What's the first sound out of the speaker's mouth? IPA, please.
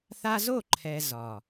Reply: θ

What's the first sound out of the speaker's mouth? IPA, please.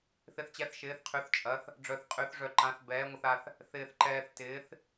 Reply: θ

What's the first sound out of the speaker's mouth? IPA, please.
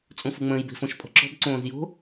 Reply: t͡sʼ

